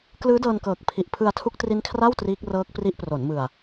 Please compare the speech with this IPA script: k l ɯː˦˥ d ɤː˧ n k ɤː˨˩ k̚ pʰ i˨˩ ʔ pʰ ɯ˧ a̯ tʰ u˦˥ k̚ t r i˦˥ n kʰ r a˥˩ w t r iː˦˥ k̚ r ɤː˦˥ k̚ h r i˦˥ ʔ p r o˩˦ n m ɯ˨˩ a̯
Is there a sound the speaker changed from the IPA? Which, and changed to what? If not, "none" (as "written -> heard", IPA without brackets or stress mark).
h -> p